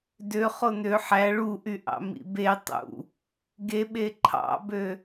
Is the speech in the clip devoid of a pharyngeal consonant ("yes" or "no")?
no